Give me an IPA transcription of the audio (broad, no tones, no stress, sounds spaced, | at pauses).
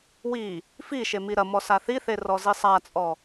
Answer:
w i | f i ʃ e m i ɾ ɐ m ɔ s a θ i θ e r ɔ z i sˤ a t͡sʼ ɔ